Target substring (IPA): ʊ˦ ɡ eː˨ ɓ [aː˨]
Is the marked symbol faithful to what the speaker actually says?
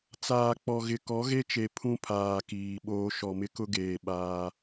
no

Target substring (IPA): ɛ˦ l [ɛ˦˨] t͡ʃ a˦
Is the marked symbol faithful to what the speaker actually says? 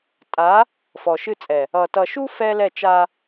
yes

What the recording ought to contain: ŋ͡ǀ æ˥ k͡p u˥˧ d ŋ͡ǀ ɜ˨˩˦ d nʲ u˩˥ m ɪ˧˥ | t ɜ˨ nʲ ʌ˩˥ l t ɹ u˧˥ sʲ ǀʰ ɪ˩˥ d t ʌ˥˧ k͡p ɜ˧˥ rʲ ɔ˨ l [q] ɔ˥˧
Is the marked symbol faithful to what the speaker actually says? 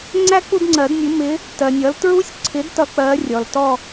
no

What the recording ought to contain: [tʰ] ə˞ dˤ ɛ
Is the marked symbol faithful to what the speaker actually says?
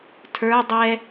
yes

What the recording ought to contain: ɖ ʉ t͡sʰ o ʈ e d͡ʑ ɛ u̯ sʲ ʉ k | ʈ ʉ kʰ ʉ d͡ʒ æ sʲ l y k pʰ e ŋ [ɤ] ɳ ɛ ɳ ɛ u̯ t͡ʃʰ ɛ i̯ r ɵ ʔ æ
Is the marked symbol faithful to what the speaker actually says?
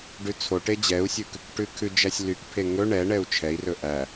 no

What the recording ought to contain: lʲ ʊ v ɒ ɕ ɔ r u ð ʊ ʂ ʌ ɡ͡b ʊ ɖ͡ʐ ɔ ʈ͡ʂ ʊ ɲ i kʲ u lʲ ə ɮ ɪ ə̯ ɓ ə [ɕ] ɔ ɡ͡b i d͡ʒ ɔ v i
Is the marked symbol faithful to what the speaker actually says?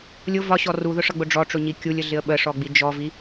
no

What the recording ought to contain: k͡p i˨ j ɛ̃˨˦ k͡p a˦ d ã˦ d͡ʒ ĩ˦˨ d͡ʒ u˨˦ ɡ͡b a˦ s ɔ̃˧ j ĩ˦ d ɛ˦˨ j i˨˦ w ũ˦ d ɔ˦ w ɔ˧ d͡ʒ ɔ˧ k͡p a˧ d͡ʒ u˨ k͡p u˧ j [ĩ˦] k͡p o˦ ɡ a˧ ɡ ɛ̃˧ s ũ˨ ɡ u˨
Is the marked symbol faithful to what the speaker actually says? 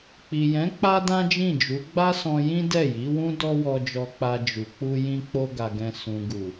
yes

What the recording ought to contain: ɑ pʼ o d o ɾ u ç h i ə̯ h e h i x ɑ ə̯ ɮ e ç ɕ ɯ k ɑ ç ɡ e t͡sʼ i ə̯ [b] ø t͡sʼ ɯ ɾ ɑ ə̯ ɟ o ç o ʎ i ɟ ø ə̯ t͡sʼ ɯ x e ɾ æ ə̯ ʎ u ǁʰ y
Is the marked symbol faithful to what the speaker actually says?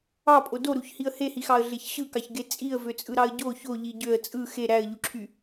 no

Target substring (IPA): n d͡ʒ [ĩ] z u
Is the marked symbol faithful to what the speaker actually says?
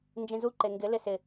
yes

